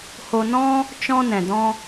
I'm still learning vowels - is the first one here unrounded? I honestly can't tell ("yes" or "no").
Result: no